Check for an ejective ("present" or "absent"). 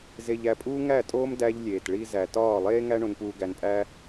present